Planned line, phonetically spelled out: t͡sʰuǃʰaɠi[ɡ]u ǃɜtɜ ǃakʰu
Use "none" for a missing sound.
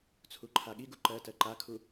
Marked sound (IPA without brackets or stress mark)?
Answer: ɡ